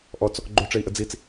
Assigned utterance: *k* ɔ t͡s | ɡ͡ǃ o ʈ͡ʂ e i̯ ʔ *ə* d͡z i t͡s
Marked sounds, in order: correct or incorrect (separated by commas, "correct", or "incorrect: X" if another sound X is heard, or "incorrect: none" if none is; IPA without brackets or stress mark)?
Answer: incorrect: ʔ, correct